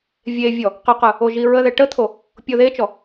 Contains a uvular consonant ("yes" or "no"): yes